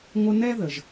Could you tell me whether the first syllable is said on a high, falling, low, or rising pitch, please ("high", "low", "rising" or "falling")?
high